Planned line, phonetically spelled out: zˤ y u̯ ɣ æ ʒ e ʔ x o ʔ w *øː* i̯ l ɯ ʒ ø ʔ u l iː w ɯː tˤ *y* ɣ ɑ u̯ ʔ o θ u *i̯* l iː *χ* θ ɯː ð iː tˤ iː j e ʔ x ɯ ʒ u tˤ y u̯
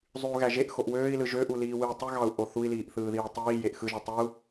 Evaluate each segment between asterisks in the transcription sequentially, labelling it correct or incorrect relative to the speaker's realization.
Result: correct, correct, correct, incorrect: ʔ

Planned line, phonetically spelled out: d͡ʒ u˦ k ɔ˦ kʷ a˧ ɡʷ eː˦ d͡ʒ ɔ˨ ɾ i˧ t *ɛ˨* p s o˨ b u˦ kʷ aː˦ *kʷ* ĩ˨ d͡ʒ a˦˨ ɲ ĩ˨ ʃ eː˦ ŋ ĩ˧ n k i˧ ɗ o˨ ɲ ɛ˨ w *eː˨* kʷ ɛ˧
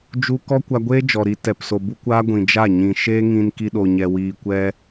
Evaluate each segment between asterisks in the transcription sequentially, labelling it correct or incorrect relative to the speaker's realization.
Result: correct, incorrect: ɡʷ, incorrect: iː˨

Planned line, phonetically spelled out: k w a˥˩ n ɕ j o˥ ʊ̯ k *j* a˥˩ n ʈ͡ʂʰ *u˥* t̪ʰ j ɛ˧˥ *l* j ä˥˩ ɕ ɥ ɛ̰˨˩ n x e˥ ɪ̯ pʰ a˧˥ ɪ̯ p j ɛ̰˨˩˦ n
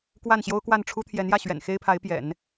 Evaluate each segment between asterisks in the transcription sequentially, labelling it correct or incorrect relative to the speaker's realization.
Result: incorrect: w, correct, incorrect: n

